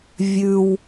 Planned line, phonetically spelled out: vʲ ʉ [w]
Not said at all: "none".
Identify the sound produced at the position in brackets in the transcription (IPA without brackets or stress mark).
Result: w